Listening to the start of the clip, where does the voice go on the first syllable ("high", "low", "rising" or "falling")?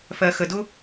low